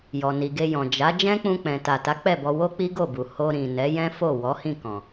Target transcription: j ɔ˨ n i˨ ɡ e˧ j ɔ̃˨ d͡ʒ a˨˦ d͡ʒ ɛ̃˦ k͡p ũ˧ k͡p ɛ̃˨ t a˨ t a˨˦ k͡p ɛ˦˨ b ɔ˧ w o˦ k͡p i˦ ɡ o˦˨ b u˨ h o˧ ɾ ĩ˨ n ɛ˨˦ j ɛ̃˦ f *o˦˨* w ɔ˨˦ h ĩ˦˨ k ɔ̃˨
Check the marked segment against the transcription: correct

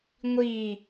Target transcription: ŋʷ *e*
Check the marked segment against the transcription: incorrect: i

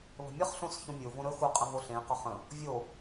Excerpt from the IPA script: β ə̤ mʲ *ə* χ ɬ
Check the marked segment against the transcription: correct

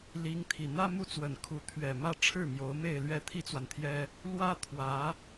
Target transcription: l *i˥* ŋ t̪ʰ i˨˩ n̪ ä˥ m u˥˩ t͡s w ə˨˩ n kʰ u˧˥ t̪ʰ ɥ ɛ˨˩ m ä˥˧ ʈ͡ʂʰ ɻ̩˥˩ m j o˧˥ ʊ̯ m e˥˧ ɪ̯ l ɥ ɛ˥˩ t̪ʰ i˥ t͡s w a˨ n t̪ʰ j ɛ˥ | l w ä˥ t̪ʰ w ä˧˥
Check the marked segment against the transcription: incorrect: i˧˥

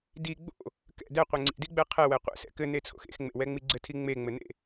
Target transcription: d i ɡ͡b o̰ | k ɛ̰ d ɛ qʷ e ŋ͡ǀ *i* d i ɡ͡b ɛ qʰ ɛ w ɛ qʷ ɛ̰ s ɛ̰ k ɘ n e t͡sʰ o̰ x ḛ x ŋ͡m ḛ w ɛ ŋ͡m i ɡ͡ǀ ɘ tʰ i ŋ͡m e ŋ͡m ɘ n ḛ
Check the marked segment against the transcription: incorrect: ḭ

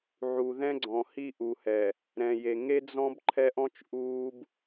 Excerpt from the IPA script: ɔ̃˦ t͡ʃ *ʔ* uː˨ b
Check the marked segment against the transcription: correct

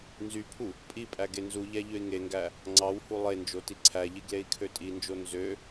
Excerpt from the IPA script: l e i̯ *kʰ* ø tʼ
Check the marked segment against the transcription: correct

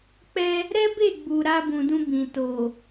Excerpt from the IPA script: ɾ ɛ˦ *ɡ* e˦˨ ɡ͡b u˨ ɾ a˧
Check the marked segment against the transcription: incorrect: b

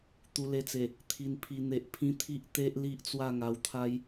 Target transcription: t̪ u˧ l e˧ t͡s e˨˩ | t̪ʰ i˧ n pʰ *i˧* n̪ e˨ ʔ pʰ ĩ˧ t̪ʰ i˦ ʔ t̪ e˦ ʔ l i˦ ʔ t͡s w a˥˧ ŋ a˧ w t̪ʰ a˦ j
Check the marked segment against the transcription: correct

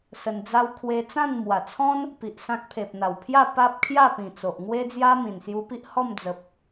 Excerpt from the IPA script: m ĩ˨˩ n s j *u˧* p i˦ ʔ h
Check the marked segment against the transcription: correct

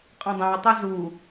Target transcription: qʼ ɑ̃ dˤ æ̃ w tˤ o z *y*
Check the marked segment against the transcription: incorrect: u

